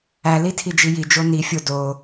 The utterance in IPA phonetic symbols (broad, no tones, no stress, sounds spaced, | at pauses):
æ l i tʰ i d͡ʒ i j i d͡ʒ o n i fʲ o d o